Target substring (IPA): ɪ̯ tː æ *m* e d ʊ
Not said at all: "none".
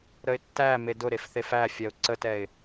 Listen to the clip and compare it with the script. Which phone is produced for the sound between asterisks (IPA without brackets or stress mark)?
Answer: m